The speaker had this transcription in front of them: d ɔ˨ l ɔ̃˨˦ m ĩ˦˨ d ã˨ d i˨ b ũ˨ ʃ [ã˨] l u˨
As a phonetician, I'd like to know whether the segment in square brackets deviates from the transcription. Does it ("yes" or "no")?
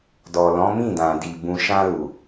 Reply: yes